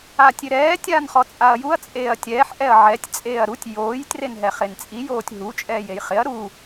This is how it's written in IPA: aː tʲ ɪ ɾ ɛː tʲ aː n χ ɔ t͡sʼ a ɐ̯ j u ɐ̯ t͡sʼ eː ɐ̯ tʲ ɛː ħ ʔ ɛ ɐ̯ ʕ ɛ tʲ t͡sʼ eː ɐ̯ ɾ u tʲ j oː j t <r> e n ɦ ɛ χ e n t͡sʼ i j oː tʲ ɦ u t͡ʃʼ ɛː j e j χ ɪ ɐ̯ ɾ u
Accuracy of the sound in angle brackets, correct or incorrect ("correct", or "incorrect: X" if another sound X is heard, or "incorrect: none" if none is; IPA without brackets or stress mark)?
correct